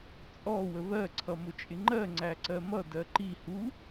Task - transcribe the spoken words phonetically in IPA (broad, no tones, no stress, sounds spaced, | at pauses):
t͡sʼ ɔ w ə β ɜ ǀʰ ʌ m ʊ t͡ʃʼ ɪ ŋ͡ǃ ɜ ŋ͡ǀ æ ǀ ɜ m ʌ d ɜ ǃ i h u